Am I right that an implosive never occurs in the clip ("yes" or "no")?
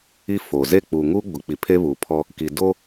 yes